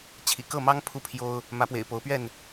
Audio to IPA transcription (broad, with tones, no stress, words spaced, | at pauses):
t͡ɕʰḭ˨˩kɤ˥˨mɑ˦ŋ pʰu˦pʰjo˦ʊ̯ | mä˨˦pwḛ˨˩ɪ̯ po˨˦ʊ̯pɥɛ˥˨n